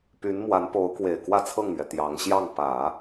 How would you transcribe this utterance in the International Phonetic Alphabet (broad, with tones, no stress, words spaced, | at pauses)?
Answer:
py˧˥nmwa˧˥npo˧˥ʊ̯ kwe˨˩ɪ̯kwä˥˧t͡sʰɤ˥˩ŋmɥɛ˩ t̪jɑ˧˥ŋ ɕjɑ˥˩ŋ pä˨˩˦